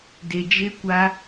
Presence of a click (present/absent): absent